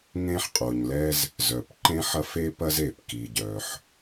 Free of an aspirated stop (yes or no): yes